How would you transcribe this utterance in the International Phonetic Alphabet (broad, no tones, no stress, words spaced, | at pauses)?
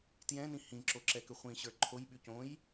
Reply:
tjɛ̃nĩ hĩǁoǁɛkʏ χʷĩɕə˞ ǃʰojɓy cõj